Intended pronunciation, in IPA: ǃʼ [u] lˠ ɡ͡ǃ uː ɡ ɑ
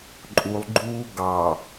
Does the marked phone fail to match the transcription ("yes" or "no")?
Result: no